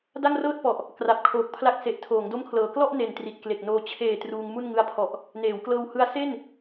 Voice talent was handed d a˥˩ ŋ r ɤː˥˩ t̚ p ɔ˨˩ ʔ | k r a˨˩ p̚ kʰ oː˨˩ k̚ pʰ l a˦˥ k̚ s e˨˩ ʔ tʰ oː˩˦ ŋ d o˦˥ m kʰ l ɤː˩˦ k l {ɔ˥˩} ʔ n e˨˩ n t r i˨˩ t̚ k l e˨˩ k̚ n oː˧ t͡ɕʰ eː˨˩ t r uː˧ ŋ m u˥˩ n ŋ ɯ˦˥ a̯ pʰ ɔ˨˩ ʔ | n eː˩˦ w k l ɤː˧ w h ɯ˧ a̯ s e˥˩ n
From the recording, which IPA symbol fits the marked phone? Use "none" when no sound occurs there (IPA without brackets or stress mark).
ɔ˥˩